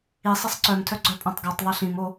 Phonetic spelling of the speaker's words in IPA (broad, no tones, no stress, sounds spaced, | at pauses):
i sˤ ɛ sˤ ǀ œ m tʰ œ ɡ͡ǀ œ pʼ õ tˤ ɡ ɔ tˤ ðˤ ɛ ɬ ĩ m o